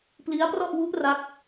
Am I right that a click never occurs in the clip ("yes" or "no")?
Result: yes